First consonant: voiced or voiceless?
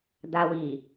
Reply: voiced